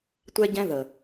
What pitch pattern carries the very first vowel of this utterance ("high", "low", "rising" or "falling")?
high